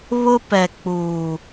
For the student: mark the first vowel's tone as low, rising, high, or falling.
high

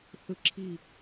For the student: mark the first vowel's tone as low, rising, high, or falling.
rising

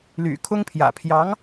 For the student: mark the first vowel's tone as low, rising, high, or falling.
low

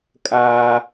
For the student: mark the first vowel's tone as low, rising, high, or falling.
high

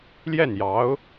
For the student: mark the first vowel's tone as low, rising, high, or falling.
falling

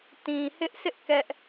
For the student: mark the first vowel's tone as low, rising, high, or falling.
low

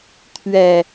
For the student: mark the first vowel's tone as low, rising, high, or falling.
low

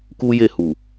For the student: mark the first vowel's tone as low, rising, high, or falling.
high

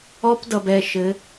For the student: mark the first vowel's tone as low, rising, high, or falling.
high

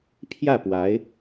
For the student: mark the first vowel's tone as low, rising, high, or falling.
falling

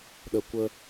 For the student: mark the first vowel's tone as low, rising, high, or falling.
low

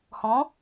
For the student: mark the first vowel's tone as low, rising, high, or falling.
rising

